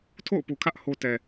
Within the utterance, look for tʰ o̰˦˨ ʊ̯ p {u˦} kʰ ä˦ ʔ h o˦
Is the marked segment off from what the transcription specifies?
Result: yes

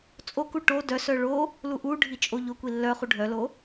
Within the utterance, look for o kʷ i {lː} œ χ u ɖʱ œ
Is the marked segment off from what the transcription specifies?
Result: no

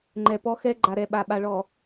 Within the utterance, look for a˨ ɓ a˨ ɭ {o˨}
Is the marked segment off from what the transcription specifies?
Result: yes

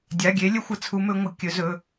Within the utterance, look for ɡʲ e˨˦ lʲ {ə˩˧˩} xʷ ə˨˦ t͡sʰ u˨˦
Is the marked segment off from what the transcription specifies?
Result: yes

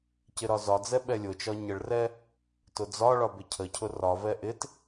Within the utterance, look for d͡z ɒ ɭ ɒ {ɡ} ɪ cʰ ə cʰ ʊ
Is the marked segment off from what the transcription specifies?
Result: yes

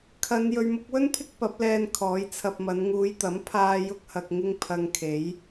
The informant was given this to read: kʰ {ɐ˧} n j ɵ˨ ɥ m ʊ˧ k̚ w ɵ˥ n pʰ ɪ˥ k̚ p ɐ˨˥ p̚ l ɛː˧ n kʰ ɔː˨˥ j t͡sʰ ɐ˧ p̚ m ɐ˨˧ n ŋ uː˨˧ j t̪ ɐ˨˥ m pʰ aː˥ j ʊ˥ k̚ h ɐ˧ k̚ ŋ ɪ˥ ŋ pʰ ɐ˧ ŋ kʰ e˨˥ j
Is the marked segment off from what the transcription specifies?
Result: yes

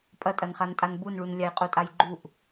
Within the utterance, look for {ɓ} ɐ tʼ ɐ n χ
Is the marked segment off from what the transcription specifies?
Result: yes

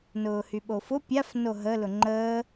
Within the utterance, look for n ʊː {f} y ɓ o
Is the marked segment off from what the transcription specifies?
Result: yes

